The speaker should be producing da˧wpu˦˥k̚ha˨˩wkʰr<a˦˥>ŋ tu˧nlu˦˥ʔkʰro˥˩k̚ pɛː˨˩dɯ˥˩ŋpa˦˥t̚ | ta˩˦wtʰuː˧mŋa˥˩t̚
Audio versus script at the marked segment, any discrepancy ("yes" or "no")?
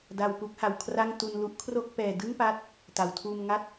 yes